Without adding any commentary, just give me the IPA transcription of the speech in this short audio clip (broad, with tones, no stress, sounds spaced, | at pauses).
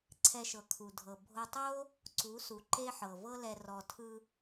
ǀʰ ɛ˧ ʃ ɤ˨ kʰ u˨ dʱ ɤ˨ bʱ o˧ tˤ o˦ | ǀ u˨˦ s u˨ ǃ e˦ ħ ɤ˨ v ɤ˦ l ɛ˧ r ɔ˨ tʰ ɯ˧